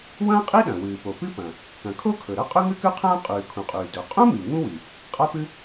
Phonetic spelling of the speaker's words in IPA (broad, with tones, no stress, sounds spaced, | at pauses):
w ɐ̃ː˥ qʼ i˥ ɗ ɐ̃˩ w ɨː˩ p o˩ p ɨ˥ p ɐ̃˩ | k ɐ̃˩ kʰ o˥ kʰ ɵ˩ ɾ ɐ˥ qʼ ɵ˥ ŋ ɨ˥ k ʉ˥ qʰ ɐ̃ː˥ qʼ ʉː˩ kʰ ũ˩ qʼ ʉː˩ d ɵ˩ qʼ ũ˥ m i˩ ŋ ũ˥ w i˩ | qʼ a˥ p ɨ˥